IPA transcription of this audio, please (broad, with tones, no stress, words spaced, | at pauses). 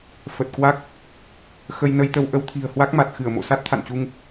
fə˨˩t̚kwa˦˥k̚ | xə˧jnə˧jt̪ə˧w ʔə˧wt̪ʰi̤˨˩ə̯hwa˦˥k̚ma˨˩t̚ xɨ˧˩ə̯mo̰˧˨ sa˦˥t̚t̪ʰa̰˧˨nt͡ɕu˧ŋ